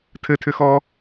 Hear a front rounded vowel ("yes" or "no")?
yes